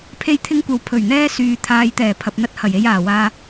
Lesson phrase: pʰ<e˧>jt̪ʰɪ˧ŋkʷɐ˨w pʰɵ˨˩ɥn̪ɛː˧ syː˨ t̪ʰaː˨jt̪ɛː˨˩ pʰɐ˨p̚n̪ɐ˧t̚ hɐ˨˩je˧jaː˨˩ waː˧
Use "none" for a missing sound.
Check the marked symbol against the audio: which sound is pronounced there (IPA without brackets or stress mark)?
e˧